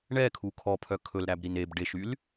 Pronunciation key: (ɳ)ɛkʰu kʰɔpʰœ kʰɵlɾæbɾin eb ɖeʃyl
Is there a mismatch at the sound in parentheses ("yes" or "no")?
no